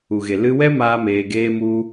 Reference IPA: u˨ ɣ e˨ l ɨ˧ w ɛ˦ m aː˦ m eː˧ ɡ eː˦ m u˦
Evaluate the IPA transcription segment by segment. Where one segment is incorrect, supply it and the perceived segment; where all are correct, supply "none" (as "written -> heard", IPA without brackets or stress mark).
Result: none